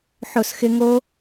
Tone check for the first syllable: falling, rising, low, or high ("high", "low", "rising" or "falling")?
falling